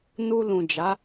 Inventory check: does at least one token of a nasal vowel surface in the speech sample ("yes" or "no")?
yes